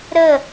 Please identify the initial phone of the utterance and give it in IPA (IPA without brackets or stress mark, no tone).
ɾ